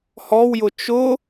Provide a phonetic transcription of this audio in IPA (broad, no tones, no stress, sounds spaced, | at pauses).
h ɔ w j ʊ t͡ʃ ʊ